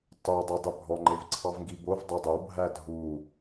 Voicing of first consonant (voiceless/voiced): voiceless